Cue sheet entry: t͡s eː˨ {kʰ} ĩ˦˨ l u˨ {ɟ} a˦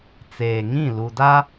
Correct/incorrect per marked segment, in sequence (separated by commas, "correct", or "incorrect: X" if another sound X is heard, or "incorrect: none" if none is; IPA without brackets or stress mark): incorrect: ŋ, incorrect: d